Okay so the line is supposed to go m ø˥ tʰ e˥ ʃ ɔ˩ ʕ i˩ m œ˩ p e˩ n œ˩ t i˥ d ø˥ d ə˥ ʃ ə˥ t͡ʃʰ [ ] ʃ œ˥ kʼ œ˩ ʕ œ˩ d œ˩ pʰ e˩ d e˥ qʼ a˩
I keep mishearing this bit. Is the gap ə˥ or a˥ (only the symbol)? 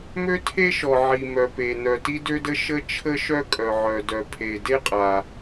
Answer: ə˥